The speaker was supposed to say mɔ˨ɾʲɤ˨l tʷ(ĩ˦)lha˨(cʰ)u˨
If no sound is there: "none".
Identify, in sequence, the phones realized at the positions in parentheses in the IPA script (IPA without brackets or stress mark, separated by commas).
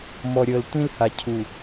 ĩ˦, cʰ